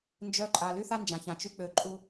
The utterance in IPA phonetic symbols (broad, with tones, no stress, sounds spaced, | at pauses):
n d͡ʒ œ˦ ǃʼ a˧ l y˦ θ a˦ n d͡ʒ ã˨ ç ã˨ t͡ʃ y˦ k͡p ø˧ ǃʼ u˧